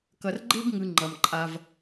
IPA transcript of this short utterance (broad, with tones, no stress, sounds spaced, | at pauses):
k ʌ˨ r ɡ͡ǃ e˦ b ŋ ɯ˨ ŋ͡ǃ ʌ˨ m ǃʼ a˧ v